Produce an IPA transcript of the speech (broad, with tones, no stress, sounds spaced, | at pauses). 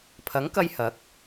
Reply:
pʰ ɐ˨˥ ŋ k ɐ˧ j h ɐ˨˥ k̚